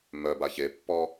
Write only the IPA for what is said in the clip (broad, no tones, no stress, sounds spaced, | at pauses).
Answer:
m œ b a ç e pː ɔ